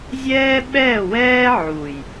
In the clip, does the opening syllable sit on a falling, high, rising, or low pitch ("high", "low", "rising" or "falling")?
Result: high